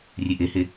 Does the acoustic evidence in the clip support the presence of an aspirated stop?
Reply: no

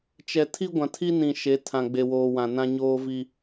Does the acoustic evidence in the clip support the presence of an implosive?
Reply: no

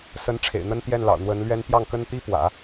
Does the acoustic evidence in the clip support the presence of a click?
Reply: no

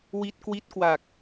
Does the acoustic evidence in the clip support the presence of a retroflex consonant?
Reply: no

